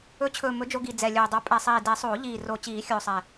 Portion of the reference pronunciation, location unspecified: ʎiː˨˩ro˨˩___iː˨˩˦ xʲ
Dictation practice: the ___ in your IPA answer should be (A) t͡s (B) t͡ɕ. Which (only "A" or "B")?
B